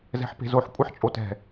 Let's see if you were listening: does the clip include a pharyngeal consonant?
yes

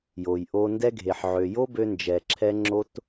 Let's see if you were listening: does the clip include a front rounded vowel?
yes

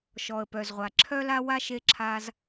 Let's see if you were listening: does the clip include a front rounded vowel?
yes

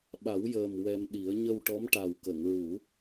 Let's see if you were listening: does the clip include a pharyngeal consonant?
no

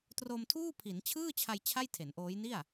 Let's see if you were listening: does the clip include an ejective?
no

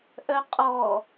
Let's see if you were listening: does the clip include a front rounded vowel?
yes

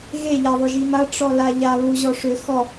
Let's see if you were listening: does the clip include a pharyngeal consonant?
no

